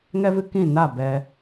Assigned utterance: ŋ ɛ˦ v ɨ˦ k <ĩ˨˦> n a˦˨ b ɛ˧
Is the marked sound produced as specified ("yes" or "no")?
no